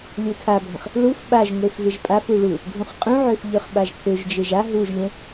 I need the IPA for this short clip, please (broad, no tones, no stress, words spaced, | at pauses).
lʲutʰabʱə̃χ | ɭuf ɓaʒŋʷef veʒpʼafu ɭu | dʱũχqʼũʕøf ʎøχɓaʒkʰøʒd͡ʒeʒ a ɦuʒlʲə̃